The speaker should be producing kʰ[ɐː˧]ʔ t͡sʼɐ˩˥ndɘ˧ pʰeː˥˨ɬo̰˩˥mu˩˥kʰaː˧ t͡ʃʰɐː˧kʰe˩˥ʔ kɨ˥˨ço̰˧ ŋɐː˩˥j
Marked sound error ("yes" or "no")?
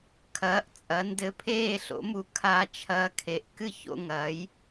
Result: yes